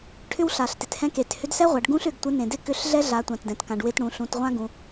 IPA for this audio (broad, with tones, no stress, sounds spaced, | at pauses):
ʈʰ ʏ˥ w ɬ a˩ ɬ t ɪ˩ t h ɛ̃˧ k e˩ t h ʏ˧˥ d s ɛ˥ ʁʷ a˩˧ ɖ ɡ ũ˥ ɬ ʏ˩˧ ɡ tʷ ɪ˧˥ n ẽ˩ d ɪ˥ k ʏ˧˥ ɬ ɮ ɛ˥ ɮ a˩˧ tʷ ã˩ t d ɛ̃˩ t k ã˩ ɖ w ɪ˧ t ɽ ũ˩˧ ɬ ũ˩˧ t ʁʷ ã˥ ɡ ũ˩˧